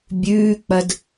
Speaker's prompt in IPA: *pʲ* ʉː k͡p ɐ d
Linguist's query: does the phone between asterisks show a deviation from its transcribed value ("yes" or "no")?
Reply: yes